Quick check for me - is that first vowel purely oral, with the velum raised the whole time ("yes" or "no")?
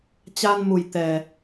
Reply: yes